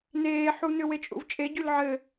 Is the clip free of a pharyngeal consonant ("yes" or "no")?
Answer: no